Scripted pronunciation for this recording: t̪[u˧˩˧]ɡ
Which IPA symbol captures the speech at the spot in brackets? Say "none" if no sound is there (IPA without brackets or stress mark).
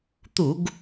u˧˩˧